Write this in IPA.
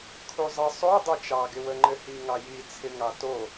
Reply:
kʰ u zˤ ə sˤ o dˤ o t͡ʃ ɑ ɡ ɪ w ə ŋ͡ǃ ɘ h i ŋ ɑ j i t͡sʰ ɪ ŋ ɑ t o

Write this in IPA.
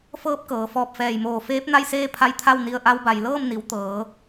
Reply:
f ɤː˧˥ p̚ k ɤː˩˧ f ɔː˧˩ p̚ f ɛː˧˩ j m oː˧˩ f eː˧˥ p̚ n a˥˨ j s eː˥˨ pʰ a˧ j t̪ʰ a˥˨ w n i˧˩ ə̯ ʔ a˧ w b a˩ j l ɤː˥˨ m n i˩˧ w t̪ ɤː˩˧

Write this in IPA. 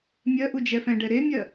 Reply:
mʲ ɜ ʔ u d͡ʒ ɛ f ɛ̃ ɖ ɛ ɾ e mʲ ɜ

